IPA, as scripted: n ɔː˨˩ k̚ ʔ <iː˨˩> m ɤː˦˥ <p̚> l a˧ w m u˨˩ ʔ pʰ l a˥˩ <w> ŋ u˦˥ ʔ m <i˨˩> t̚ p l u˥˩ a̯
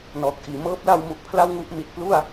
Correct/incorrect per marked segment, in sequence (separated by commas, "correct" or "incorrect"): correct, correct, correct, correct